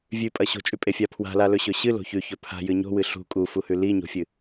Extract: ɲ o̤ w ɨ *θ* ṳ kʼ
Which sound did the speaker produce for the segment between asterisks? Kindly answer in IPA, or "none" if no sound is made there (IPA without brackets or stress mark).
ɬ